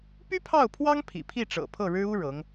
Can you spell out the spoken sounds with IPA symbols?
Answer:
py˥pʰɑ˥˩ʊ̯pʰwɑ˥ŋ pʰḭ˨˩pʰi˥˩ʈ͡ʂɤ̰˨˩ pʰɤ˥˩ɻɻ̩˥u˥ ɻɤ˧˥ŋ

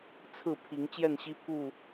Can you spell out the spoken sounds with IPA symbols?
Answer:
t͡sʰɹ̩˥˨pʰi˨˦ŋ t͡ɕjɛ˥˨nɕi˦pʰu˥˨

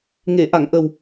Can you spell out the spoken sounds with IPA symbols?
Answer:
ŋe˨˩˨ʔa˨˩˨ŋ ʔə˨˩w

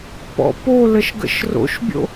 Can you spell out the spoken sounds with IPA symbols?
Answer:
pɔ̰poləʃ ɡə̰ʃro̰ʃbʲo̰

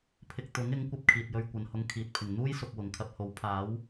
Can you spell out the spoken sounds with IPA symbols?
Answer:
pʰɪ˧k̚ t̪ʊ˨˥ŋ ɪ˨˥ŋkʷɐ˧p̚ kʰiː˨t̚jɵ˧ɥ kʷɐ˨nhʊ˧ŋ kʰiː˨t̚pʰɪ˨˩ŋ n̪uː˥jsʊ˨k̚ wʊ˨˩ŋkʰɐ˧p̚ho˨˥w pʰaː˨˥w

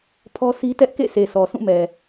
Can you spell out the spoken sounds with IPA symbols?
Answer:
pʰɔ˦sʰi˦ tɛ˦ʔkḛ˦˨ sʰe˨sɔ˨sũ˦˨mɛ˨

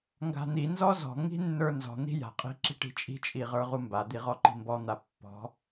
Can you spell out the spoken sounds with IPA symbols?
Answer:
ŋɡa̤n̪inzɔ zɔ̤ŋi̤ nːə˞nzɔ̤n̪i̤ ja̤qʼi̤ ǁi̤ʈi̤t͡ʃʼi̤t͡ʃʼi ʁə˞ʁumbad̪i ʁɔǃi̤mbɔn̪a pːɔ̤

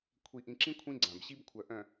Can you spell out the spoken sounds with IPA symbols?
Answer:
kʷʰi˨ʔĩ˨ǁĩ˦ kʷʰĩ˦ɡ͡ǀã˨bɕi˦b kʷʰœ˨ʔœ̃˨

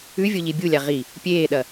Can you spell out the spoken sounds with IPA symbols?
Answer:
ʉvʲoʎi bʲulʲa ʁi | pʲeːɗɐ

